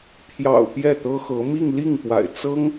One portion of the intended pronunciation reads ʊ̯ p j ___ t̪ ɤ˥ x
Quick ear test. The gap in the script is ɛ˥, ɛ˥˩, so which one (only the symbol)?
ɛ˥˩